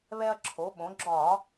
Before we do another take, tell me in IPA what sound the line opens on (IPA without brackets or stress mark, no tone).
β